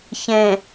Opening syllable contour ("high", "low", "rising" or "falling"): low